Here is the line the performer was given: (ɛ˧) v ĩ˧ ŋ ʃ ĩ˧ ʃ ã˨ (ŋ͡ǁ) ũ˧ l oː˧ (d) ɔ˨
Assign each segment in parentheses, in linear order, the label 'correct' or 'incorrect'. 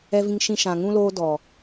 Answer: correct, incorrect, correct

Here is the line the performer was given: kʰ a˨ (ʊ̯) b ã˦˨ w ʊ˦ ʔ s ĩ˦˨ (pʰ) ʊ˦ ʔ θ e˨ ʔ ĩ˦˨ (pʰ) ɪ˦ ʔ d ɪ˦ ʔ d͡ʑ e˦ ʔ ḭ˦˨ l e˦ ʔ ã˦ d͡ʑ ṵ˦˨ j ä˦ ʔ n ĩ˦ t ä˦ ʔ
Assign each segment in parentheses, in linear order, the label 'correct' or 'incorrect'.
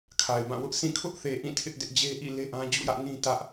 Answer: incorrect, incorrect, incorrect

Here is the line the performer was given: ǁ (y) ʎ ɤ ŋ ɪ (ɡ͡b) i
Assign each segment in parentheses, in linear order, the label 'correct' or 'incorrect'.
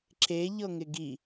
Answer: incorrect, incorrect

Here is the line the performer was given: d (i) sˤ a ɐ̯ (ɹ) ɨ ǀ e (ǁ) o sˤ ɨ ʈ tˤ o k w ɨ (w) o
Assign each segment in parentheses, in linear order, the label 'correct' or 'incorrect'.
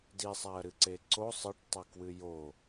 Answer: correct, incorrect, incorrect, incorrect

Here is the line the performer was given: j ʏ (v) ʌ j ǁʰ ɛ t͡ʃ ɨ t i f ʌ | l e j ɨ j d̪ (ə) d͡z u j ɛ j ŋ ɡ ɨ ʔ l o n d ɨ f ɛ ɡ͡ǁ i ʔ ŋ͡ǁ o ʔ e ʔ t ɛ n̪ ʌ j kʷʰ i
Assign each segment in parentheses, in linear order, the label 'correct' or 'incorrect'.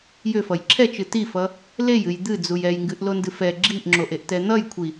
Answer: incorrect, incorrect

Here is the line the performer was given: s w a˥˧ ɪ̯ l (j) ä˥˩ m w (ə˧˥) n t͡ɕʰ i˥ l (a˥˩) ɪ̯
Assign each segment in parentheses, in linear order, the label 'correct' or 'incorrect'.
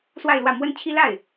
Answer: incorrect, incorrect, correct

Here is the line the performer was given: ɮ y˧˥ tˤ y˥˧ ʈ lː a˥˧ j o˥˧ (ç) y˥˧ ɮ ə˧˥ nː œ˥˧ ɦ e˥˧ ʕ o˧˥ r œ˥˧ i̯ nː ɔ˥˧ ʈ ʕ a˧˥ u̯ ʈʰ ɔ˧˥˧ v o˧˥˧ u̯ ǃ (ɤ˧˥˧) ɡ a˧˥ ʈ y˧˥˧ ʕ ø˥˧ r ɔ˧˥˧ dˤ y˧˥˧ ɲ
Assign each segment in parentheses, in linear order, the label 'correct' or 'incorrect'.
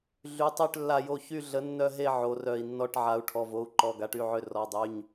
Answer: correct, incorrect

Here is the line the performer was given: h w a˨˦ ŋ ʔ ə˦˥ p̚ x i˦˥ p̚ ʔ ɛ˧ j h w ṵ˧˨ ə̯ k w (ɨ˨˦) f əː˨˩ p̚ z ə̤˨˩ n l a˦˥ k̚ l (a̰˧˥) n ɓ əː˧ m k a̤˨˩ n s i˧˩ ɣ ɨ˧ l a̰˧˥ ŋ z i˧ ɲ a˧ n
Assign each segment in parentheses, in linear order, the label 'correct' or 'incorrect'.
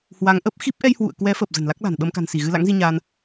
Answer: incorrect, incorrect

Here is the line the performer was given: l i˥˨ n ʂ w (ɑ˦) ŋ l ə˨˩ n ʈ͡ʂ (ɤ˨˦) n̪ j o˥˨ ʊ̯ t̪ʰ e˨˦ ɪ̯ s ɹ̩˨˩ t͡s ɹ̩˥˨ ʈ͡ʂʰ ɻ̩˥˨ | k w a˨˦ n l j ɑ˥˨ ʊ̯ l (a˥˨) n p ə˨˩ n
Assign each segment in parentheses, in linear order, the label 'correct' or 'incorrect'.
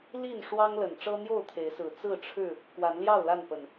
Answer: correct, incorrect, correct

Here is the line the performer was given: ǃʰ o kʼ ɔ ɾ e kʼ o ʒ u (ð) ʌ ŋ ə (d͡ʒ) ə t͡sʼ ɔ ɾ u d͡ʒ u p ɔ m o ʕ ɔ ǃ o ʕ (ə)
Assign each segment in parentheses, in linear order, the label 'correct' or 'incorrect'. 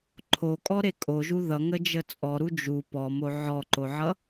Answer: correct, correct, incorrect

